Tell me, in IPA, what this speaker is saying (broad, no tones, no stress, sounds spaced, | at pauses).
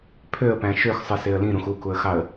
pʰ ø ə̯ p æ̃ ʃ ø x sˤ ɯ s e ə̯ l ĩ ɾ ũ x u k u ə̯ x ɑ ə̯